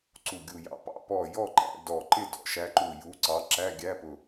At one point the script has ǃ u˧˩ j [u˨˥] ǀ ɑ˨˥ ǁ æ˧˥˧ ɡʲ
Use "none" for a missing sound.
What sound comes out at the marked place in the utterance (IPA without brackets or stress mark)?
u˨˥